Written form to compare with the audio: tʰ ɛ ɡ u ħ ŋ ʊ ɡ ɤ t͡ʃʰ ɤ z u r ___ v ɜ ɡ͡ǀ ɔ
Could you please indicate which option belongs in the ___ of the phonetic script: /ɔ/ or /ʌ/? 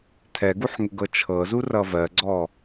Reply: ʌ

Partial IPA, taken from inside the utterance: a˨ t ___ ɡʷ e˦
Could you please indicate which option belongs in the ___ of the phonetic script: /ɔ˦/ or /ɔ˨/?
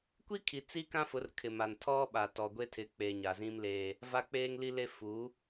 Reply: ɔ˨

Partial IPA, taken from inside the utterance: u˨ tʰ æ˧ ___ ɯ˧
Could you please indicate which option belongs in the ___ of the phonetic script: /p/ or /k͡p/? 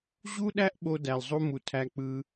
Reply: k͡p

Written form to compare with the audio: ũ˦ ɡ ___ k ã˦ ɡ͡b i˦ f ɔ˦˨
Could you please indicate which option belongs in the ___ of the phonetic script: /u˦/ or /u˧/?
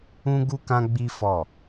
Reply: u˦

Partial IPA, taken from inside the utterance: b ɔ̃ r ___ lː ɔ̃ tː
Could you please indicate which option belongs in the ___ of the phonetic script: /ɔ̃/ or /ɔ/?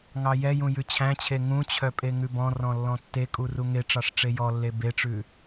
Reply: ɔ̃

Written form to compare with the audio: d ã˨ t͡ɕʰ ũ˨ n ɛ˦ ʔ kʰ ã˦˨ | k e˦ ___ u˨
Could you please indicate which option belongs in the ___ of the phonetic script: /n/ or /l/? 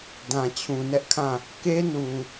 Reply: n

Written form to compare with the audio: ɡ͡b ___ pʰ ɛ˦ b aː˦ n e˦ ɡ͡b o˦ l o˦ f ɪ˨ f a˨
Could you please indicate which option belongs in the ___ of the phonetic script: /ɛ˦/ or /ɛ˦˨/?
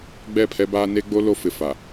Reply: ɛ˦˨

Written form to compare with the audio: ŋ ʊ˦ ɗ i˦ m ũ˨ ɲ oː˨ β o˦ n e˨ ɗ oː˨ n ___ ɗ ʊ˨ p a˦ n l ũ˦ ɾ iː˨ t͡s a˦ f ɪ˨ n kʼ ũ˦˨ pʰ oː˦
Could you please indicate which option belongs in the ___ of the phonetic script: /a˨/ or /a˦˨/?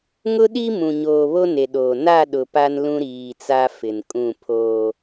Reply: a˦˨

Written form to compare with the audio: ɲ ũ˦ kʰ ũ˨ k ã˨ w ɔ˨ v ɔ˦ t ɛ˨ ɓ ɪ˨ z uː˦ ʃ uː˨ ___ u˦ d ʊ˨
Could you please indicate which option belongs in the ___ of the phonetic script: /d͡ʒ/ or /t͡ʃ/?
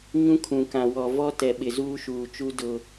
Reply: t͡ʃ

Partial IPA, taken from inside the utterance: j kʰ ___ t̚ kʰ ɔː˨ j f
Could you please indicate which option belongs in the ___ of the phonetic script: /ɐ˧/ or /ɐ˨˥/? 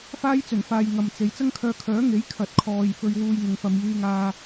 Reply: ɐ˨˥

